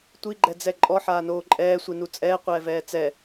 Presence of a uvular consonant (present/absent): present